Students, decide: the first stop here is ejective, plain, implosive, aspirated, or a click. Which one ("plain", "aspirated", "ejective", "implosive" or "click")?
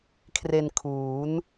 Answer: aspirated